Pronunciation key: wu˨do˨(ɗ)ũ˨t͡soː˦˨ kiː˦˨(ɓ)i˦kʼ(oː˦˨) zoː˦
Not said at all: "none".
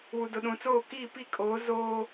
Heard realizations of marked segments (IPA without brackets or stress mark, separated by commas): ɗ, p, oː˨˦